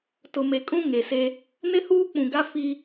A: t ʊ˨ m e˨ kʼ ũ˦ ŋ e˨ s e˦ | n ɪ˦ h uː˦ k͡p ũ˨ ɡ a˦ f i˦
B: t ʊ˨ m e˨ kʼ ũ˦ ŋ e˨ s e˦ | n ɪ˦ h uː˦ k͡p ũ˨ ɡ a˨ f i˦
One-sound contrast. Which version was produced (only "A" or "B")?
A